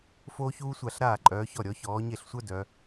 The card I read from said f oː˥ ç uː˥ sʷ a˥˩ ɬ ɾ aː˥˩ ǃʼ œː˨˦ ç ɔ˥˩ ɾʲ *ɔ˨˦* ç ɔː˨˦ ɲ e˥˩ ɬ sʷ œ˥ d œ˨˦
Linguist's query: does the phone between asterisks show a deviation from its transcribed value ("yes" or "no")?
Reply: no